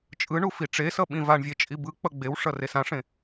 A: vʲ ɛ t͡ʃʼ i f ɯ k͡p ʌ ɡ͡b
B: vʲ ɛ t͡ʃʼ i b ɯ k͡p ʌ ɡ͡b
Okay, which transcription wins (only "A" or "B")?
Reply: B